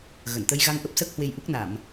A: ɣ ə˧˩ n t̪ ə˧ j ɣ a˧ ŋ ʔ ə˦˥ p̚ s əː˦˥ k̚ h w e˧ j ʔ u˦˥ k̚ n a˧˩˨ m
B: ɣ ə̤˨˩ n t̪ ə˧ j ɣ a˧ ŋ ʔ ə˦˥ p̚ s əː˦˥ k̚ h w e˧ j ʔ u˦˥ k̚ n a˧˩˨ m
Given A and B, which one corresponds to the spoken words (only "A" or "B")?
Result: A